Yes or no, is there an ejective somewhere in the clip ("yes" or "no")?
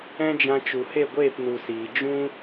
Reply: no